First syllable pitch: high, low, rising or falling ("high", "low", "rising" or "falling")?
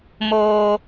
low